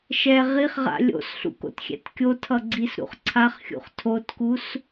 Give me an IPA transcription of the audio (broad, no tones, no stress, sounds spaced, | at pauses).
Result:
ʃ ɛ ʁ i χ ʁ a̰ lʲ o̰ s ɬ ṵ k o̰ t xʲ ɛ̰ t kʲ o tʰ ʌ ɡ͡ǀ i s ɾ ṵ χ ǀʰ a χ xʲ ṵ χ tʰ o t k u s